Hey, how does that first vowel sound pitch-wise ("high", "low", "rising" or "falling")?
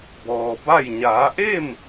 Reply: low